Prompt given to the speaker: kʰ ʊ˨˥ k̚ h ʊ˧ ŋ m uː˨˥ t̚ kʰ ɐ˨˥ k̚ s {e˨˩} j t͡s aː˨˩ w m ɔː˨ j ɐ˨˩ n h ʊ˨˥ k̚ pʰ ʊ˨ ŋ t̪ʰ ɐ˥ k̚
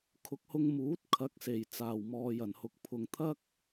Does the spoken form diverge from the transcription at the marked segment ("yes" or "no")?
no